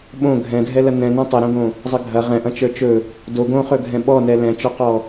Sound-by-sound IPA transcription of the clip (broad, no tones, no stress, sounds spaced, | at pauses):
ɓ õ ɡʱ ɛ̃ dʱ ɛ l ɐ n ɛ̃ n ɐ̃ tˤ ɛ ɾ õ ɡ õ | zˤ ə ɡʱ ɐ ʁ ɛ̃ ʔ ɐ̃ t͡ʃ ə˞ t͡ʃ ɵ | d o ɡ õ χ ɵ ɡʱ ɛ̃ ɓ ɔ n ɛ l ɛ̃ t͡ʃ ɔ q ɔ